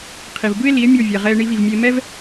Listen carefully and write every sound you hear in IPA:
qʰ i˩ v b ɯ˥ e̯ l i˩˥ e̯ mʲ o˥˩ vʲ ɛ˩ ʁ ɛ˧ e̯ ɳ i˧ v i˩ v mʲ e˧ m ɛ˥ v

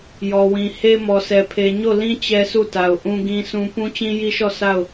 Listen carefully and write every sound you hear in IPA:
j ɔ˨ w ĩ˨ h e˦ m ɔ˨ s ɛ˨ pʰ e˨ ɲ o˦˨ l ĩ˦ t͡ɕ ɛ˦ s u˦˨ t a˨ ʊ̯ ʔ ũ˦ ɡ ĩ˦ sʰ ũ˦ p ũ˦ t͡ɕ ĩ˦ j i˦ ʃ ɔ˦˨ s a˦˨ ʊ̯

